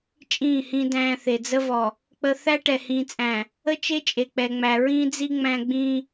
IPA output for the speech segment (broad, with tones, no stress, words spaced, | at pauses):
t͡ʃʼĩː˦˨hĩ˦dæ̃ː˦θe˨ d͡zə˦vɔ˨ | k͡pə˦ θæ˦ʈɛ˨hĩː˨t͡sʼæ̃˨ | ə˦t͡ʃe˦ t͡ʃʼe˨k͡pɛ˨ŋ͡mæ˨ ɹĩː˦d͡zi˦ ŋ͡mæ̃˦ɡ͡bĩː˦